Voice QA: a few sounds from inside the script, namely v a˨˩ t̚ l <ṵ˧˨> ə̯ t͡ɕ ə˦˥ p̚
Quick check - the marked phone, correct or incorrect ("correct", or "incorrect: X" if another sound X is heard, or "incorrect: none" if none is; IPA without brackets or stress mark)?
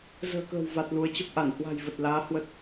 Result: incorrect: u˨˦